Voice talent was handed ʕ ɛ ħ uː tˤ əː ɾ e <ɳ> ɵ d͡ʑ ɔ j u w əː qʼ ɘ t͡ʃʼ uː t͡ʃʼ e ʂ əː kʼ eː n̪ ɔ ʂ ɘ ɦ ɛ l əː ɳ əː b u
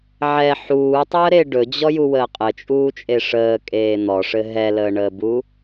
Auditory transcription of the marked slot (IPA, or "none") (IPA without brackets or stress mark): ɖ